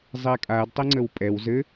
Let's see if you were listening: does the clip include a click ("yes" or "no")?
yes